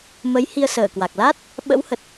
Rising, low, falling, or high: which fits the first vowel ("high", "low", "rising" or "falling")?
rising